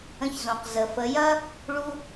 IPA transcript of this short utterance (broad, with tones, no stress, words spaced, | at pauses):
ə̃˧çzõ˩q zə˩fə˩˧jɐ˥ | ɭu˧